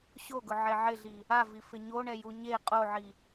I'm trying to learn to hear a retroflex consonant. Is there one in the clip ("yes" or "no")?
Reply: yes